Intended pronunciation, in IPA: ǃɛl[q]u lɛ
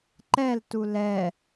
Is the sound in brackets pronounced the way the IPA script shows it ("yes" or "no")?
no